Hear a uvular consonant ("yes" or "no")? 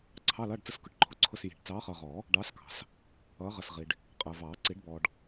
yes